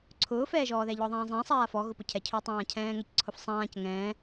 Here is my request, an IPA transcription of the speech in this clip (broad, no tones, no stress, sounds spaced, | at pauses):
ǀʰ ʊː f ɛː ʒ ɔː ð ɛ ʎ ɔ ðˤ ɛ̃ː zˤ ɛ̃ sˤ aː f ɔ ɣ ʊ p ʊ cʰ ɛ cʰ ʊː tˤ ãː cʰ ɛ̃ː ŋ ɛ c ǀʰ ʊ f sˤ ãː c ŋ ɛ̃ː